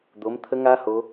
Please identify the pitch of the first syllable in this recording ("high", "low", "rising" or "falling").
rising